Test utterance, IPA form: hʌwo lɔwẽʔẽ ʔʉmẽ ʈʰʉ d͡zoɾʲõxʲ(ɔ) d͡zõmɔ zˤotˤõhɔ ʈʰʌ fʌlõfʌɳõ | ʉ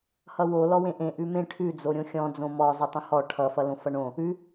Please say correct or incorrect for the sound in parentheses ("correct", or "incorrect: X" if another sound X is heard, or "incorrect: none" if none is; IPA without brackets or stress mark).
incorrect: ɔ̃